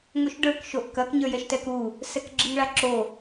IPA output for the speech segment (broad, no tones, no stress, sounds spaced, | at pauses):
ŋ o ʃ ɖ ə˞ k ʃ o ʔ k ɐ k ɲ ə˞ j ɛ ʃ t ɛ k u | s ɛ k ɡ͡ǁ ɪ ŋ ɭ a ǁ o